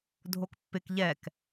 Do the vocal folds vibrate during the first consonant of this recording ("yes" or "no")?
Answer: yes